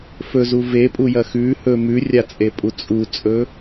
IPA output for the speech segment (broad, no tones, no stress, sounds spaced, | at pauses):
f ɵ z u v e pʼ u j ɐ x ʉ h ɵ m ʉ rʲ a t͡sʼ e pʼ u t͡sʼ u t͡sʼ ɵ